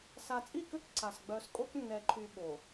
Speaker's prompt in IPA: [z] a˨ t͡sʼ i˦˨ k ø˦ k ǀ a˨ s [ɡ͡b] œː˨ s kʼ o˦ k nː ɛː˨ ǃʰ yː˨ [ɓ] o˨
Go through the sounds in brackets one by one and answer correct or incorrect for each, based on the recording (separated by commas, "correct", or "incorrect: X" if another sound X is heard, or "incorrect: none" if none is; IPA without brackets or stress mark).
incorrect: s, correct, correct